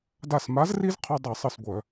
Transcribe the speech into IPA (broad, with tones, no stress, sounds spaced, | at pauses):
d a˧˩ s m a˨˥ z r i˦ z qʰ ɔ˦ dˤ i˧˩˧ sˤ ɯ˧˩ s ɡʷ œ˧˩˧